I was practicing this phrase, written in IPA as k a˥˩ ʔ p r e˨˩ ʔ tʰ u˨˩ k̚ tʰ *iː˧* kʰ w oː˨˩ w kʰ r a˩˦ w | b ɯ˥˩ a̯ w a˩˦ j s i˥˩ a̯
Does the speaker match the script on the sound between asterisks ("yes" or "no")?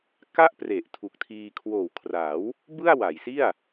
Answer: yes